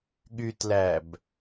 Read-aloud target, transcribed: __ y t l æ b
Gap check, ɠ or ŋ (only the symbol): ɠ